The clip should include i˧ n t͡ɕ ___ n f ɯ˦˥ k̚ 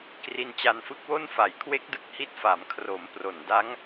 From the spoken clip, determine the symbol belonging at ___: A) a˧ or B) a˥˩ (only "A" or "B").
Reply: A